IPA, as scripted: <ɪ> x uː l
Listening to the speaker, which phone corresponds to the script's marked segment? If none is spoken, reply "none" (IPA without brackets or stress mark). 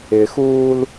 ɪ